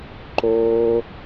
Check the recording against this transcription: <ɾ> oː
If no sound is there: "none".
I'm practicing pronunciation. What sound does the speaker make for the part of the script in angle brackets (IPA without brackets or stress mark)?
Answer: ǃ